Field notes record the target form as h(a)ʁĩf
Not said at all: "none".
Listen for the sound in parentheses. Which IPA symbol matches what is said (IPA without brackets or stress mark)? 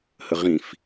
ə